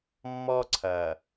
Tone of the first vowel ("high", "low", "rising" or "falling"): high